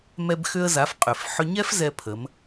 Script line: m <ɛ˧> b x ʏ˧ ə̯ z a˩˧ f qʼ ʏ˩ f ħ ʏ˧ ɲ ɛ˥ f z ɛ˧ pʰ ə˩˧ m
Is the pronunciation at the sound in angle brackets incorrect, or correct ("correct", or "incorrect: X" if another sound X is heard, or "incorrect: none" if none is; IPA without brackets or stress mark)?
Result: correct